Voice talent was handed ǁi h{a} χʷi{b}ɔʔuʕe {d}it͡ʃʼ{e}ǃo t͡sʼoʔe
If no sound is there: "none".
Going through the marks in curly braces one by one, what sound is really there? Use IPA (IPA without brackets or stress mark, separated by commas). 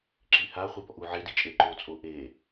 a, b, d, e